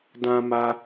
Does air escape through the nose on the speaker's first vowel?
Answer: yes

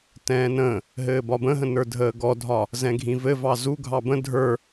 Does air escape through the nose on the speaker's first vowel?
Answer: yes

